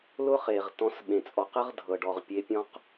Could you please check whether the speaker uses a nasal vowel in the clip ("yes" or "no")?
yes